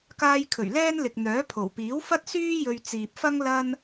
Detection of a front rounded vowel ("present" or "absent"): present